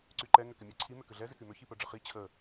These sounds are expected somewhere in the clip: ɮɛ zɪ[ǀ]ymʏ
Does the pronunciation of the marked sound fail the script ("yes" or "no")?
yes